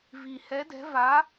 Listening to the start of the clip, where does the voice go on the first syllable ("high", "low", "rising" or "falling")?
low